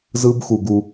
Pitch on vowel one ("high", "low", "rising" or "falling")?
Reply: high